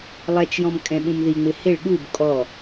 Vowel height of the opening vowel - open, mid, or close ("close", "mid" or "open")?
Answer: mid